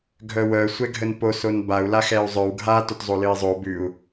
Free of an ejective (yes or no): yes